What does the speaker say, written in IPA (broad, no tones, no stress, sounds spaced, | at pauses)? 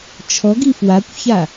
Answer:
t͡ʃʰ ɔ ɡ i f w a kʷ ç a